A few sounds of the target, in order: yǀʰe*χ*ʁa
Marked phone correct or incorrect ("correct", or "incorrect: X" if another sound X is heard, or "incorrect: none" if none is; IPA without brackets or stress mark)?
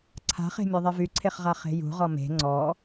correct